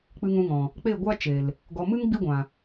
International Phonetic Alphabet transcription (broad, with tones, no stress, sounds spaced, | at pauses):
k͡p ɨ˧ ŋ ũ˧ ŋ ɔ̃˨ | k͡p e˦˨ ɡʷ a˦ t͡ʃ e˨ l | ɡ ɔ˨ m ɨ˦ ŋ ɡ͡b i˦ ɡʷ ã˨